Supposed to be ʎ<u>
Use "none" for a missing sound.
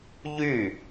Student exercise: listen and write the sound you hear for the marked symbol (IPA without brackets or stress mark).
y